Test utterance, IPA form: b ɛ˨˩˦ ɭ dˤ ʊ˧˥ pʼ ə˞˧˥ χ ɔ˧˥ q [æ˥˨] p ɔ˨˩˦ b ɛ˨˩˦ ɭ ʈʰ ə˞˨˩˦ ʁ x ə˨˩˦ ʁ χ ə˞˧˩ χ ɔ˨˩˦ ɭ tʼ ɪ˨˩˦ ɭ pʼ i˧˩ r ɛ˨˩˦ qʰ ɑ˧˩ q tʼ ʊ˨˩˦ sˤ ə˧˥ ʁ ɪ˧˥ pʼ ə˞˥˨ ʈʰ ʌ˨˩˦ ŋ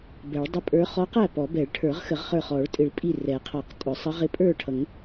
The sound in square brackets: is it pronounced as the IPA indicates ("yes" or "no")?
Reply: yes